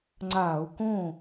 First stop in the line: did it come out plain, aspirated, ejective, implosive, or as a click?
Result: click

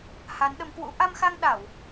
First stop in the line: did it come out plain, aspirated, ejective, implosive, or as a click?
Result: implosive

